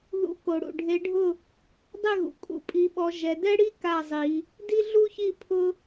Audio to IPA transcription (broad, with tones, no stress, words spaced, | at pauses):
ðṵ˨˦ ko˩ ɽṵ˩ ɖʱe˨˦ɖʱʊ˥˨ | dˤɪ˥˨ɣṵ˩ kʼṵ˨˦pʼi˨˦ɓɔ˨˦ ʒɛ˨˦ dɛ˥ɽi˥ ka˥˨zˤi˨˦ | di˥ɮu˥çi˥˨ pʰʊ˥